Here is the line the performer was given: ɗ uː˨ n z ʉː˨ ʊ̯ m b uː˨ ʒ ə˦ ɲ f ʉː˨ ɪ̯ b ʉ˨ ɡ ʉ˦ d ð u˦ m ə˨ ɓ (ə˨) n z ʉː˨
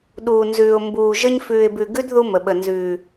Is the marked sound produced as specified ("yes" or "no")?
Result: yes